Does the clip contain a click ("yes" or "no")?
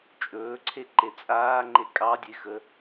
yes